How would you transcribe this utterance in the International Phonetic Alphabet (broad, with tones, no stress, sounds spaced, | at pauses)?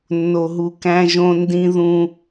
nː o˨ ɦ u˨ k æ̃˦ ʒ õ˦ n d ĩ˦ ð ũ˦